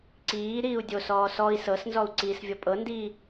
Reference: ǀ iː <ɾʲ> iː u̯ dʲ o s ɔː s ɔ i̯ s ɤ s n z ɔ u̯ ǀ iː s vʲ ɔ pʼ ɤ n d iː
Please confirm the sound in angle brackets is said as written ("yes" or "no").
no